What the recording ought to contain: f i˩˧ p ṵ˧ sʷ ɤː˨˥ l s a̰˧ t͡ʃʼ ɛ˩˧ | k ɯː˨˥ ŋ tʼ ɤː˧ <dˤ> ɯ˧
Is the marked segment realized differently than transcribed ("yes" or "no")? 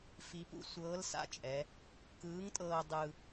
no